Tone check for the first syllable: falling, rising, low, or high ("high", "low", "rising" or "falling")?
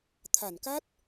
low